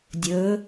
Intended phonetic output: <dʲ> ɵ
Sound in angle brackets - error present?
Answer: no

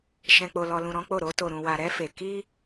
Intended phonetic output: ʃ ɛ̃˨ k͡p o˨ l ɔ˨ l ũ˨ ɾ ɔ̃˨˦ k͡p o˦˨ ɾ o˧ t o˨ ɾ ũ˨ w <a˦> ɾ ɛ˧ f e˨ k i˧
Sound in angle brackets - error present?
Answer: yes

